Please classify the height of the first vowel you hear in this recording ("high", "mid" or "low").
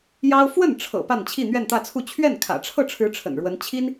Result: low